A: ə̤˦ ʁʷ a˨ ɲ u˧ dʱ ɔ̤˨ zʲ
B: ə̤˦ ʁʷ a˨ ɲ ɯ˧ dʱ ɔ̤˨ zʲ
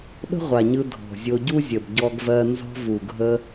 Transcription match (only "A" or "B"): B